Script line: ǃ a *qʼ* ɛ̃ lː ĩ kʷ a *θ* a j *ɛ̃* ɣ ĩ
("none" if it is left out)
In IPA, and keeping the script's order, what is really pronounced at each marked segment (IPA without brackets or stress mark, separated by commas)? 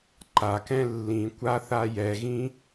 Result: k, θ, ɛ